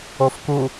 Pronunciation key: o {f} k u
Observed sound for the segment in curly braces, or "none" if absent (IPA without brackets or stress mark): f